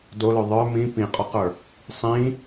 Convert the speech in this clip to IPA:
d o l ø ðˤ ə˞ m ĩ p ĩ qʼ ɔ q ə˞ | sˤ ĩ

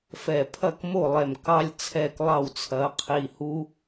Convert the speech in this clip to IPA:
f ɛ˧˩ pʰ ɐ˥˨ k m o˥˨ lˠ ɛ˧˩ m k ɑ˦ lʲ t͡sʰ ɛ˥˨ k lˠ ɑ˥˨ w t͡sʰ ɐ˨˦ qʰ i˧˩ h u˦

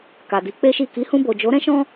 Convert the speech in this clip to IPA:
k a˨ d i˨˦ k͡p e˦ ʃ i˦˨ k i˨˦ h ũ˧ b o˨ d͡ʒ o˨˦ ɾ ɛ̃˦ ʃ ɔ̃˦

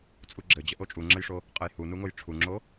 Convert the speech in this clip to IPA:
t͡sʼ u ɡ͡ǁ ɘ d͡ʑ ə ʔ o t͡ʃʼ u ŋ͡ǁ ə j ʂ o | qʼ ə j h u n u ŋ o j ʈ͡ʂʰ u ŋ͡ǁ o

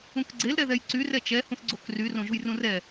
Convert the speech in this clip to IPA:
ũ k ɡ͡ǀ e l ɾ ɛ ð ɛ j ǀ y r ɛ t͡ʃ ɛ h ũ θ ɡ͡ǀ o k r y r õ ʒ u j r ũ r ɛ

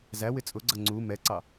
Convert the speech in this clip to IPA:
z æ w ɪ t͡sʼ ʊ ɡ͡ǀ ʌ ŋ͡ǀ u m ɛ ǀ ɑ

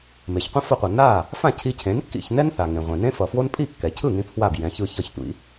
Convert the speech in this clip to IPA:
m e˩ ç qʷ ĩ˥ f ʌ˧ qʷ ʌ˩ n a˥˩ | f ã˥˩ cʰ i˧ cʰ ẽ˩˥ n kː ḭ˥˩ ç n ɛ˥ n θ a˩ ŋ ẽ˩ ʁʷ ẽ˩ n ẽ˥ f ʌ˩ f w o˥ n pʼ i˥˩ kː ɛ˩ cʰ ɯ˥˩ ŋ ĩ˧ pʰ w a˥˩ b j ɛ̃˩˥ ç ɯ˧ ç ʌ˥˩ ç tʷ ḭ˥

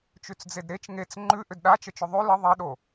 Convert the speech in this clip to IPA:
t͡ʃ ʉ t͡s d͡z e d ɾ e t͡ʃ ŋ e t͡s ŋ͡ǃ ʉ ʔ ʏ d ɗ a t͡ʃ ə t͡ʃ ʏ ðˤ ʉ l ə ðˤ e ɗ o

